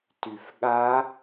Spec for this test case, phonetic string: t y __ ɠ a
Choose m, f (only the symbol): f